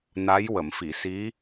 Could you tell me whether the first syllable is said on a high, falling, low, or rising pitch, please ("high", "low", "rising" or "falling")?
rising